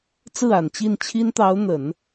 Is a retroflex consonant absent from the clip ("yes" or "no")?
yes